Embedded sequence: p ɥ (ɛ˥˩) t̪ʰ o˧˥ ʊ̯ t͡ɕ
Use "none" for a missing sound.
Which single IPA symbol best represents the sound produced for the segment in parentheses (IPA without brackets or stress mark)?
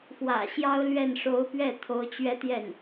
ɛ˥˩